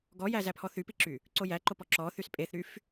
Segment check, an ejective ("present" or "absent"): present